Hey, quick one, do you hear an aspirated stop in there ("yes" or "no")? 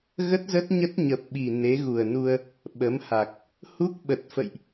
no